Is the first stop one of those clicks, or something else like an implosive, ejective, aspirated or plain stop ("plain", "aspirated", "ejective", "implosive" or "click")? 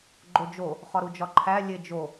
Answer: click